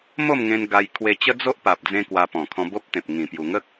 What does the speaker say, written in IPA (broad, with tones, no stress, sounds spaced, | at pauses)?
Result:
m o˥˧ m ŋ ẽ˧ n ɡ a˧ j kʰ w e˧ t͡ɕ ə˦ d͡z o˦ ʔ p a˨ p̚ d͡z ẽ˧ k w a˧ p ɔ̃˨˩ kʰ ɔ̃˧ b o˦ p̚ t̪ ẽ˨ p̚ ŋ ĩ˨˩ p j u˨˩ ŋ ə˦ k̚